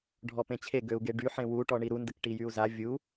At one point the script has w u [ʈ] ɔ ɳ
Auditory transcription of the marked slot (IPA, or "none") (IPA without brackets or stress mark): ʈ